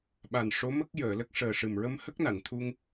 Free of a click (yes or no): yes